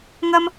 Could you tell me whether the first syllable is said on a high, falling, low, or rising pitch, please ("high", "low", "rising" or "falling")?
high